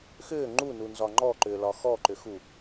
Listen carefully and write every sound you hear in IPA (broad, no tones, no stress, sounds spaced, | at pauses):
x ʏː ŋ͡ǃ u n u n z ɒ ŋ͡ǃ ɔ ǃ ʏː l ɒ x ɔ ǃ ʏ x u